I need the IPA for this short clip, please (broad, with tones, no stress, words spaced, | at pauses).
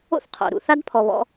o̰˦θqʰo̰˨ɾṵ˨ θa˦dpʰɔ˨βɔ̰˧